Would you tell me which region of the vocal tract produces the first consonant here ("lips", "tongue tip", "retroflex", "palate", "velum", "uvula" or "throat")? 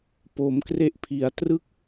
lips